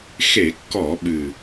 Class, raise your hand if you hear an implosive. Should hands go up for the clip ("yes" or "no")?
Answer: yes